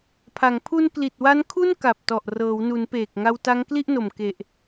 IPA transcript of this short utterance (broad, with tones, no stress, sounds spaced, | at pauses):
pʰ a˩˦ ŋ pʰ u˧ n k l i˨˩ t̚ w a˦˥ n kʰ u˥˩ n k a˨˩ p̚ t ɔ˨˩ ʔ r ɤː˩˦ w n u˩˦ n p eː˨˩ k̚ ŋ a˧ w t a˦˥ ŋ k l i˥˩ ʔ n o˨˩ m k e˨˩ ʔ